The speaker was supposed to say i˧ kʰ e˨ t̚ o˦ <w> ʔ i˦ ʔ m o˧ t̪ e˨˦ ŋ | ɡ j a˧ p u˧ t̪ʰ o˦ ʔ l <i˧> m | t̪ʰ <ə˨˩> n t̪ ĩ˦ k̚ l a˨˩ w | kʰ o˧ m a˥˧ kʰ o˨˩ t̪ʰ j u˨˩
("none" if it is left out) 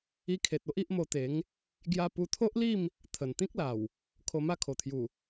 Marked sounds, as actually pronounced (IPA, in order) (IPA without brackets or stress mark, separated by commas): none, i˥˧, ə˨˩